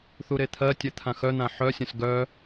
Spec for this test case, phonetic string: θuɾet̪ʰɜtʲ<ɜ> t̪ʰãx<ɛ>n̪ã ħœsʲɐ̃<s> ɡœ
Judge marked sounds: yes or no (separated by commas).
no, no, yes